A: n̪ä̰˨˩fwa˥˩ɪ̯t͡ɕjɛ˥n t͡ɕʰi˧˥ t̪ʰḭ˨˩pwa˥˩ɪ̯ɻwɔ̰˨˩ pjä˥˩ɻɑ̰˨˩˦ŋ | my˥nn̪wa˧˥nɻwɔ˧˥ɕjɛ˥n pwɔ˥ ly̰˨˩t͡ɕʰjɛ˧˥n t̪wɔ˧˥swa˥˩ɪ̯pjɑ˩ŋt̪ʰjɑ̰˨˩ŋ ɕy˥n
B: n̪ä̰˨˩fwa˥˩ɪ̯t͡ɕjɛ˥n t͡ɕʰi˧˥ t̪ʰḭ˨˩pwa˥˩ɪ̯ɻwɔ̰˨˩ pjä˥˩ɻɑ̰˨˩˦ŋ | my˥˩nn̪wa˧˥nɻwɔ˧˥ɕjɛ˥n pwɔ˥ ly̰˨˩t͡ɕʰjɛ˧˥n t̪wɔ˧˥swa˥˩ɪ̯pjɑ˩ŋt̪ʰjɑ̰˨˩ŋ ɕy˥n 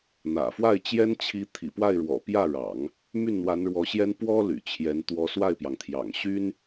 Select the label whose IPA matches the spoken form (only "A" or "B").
B